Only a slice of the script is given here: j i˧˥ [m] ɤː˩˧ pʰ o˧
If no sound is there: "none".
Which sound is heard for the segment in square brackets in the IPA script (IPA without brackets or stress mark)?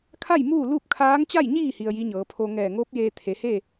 ɲ